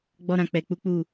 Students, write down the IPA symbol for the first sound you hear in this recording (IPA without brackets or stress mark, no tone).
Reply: ɡ͡b